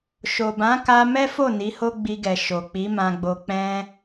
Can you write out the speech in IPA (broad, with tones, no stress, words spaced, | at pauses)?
ʃo˨bã˨˦ka˧ mɛ˦fo˦˨ ni˨˦ho˦ɡ͡bi˧ɡɛ˨ ʃo˨k͡pi˨˦ mã˧ɡ͡bo˧ k͡pɛ̃˦